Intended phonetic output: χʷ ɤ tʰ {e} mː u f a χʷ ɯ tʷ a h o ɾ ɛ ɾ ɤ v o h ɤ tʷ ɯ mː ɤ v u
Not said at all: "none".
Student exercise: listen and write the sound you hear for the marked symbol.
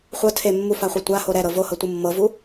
e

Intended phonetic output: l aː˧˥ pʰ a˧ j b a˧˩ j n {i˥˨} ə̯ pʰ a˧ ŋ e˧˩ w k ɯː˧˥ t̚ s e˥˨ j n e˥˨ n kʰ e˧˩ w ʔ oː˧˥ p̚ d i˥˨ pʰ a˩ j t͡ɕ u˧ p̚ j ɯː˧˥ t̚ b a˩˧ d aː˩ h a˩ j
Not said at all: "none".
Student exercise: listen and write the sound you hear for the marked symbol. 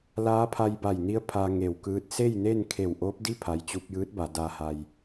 i˧˥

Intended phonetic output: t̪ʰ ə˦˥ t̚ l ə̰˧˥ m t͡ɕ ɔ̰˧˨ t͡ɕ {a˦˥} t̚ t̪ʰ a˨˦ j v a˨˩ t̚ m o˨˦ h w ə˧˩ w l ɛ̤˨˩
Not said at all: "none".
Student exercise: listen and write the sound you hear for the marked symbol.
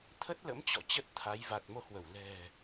ə˦˥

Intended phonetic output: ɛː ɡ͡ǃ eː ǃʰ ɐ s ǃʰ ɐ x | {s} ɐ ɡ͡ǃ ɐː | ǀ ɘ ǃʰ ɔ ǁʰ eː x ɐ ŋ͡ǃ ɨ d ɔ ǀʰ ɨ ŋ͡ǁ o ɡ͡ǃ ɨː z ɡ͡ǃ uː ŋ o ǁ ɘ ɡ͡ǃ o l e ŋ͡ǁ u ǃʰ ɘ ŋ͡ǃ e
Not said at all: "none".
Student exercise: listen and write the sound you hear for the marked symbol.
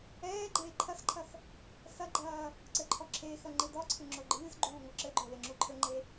s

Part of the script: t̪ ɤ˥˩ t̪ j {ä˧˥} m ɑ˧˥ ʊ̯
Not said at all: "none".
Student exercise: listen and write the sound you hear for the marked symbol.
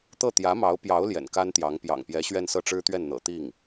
ä˧˥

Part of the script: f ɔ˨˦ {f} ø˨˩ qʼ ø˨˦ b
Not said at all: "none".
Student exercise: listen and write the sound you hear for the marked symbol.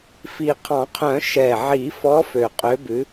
f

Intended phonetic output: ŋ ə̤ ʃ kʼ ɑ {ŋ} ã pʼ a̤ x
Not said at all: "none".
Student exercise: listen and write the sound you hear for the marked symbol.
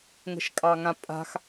ŋ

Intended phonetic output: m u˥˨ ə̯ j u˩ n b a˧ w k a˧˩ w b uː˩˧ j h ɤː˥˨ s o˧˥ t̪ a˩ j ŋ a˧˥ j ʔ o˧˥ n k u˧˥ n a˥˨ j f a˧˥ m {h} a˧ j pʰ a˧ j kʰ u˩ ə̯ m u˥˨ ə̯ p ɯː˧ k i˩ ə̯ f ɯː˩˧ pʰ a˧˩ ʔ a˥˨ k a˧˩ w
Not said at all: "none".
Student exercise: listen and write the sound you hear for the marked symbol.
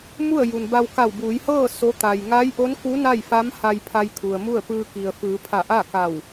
h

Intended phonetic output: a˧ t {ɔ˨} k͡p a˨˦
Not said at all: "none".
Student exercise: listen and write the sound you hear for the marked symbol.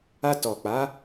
ɔ˨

